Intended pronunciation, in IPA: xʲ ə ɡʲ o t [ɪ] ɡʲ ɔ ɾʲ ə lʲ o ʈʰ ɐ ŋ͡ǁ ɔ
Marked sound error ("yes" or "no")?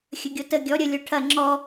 yes